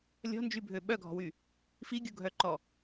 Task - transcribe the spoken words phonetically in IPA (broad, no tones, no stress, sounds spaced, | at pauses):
lʲ ɔ̤ n d͡ʒ y bʱ ø ɓ œ ɡʱ ɔ̤ w y | f i ɡʲ u ɡʱ œ ǃ ɔ